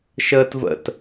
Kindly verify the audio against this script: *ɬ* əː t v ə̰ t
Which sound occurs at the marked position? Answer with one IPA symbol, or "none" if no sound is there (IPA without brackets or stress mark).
ʃ